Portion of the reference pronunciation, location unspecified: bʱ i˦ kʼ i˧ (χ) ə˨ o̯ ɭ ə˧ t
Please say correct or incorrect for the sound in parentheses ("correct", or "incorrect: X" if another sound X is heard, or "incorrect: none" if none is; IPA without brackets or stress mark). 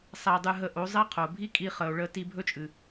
correct